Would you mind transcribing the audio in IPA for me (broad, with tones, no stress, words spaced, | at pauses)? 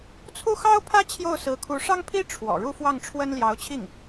t͡sʰu˥˩xɑ˥ʊ̯pʰä˥ t͡ɕʰjo˥˩ʊ̯sɹ̩˧˥kʰu˧˥ ʂɑ˥ŋpʰi˥ ʈ͡ʂʰwɔ̰˨˩ ɻu˥˧fwɑ˥˩ŋʈ͡ʂʰwə˥n ljɑ˧˥ʊ̯t͡ɕʰi˥˩ŋ